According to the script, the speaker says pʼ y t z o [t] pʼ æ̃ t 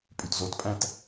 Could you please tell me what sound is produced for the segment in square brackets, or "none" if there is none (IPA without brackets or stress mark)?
t